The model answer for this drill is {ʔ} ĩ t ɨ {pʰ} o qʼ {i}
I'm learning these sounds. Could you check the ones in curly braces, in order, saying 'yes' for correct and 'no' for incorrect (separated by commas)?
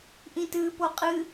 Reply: yes, no, no